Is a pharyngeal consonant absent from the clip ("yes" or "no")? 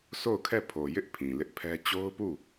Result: yes